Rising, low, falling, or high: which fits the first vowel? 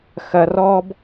high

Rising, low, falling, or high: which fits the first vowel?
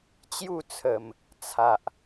falling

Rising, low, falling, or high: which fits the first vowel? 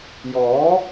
rising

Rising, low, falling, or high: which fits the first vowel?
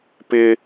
high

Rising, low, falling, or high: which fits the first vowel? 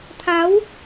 rising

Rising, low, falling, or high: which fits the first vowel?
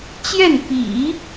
falling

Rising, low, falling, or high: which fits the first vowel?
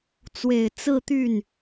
low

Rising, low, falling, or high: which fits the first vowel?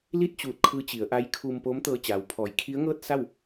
falling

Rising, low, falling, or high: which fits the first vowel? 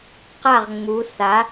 falling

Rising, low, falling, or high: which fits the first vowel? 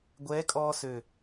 rising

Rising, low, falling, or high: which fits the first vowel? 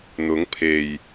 rising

